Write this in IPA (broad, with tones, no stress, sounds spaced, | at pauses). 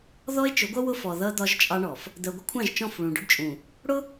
ð ɔ˦ e̯ t͡ʃ ʊ˨˦ ɡʷ ʌ˦ w ʊ˦ f ɔ˨ ð ʌ˦ d̪ ɒ˦ ʒ t͡ʃʼ ɑ˦ ɳ ɔ˨ f | d̪ ɜ˨ ɡʷ ɪ˦ kʷʰ ɑ̃˦˨ ʒ t͡ʃ ɔ̃˦˨ f ɭ ũ˨ ɖ ʊ˦ ɖ t͡ʃʼ ũ˨ | ɽ ʊ˦